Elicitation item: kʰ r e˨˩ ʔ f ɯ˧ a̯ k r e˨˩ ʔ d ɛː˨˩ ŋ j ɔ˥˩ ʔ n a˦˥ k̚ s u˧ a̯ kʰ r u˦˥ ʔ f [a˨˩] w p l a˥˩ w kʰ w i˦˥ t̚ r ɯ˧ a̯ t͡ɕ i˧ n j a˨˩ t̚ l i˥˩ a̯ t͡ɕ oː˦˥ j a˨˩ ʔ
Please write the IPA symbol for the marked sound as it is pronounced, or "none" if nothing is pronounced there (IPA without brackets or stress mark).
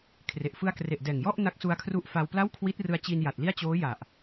a˧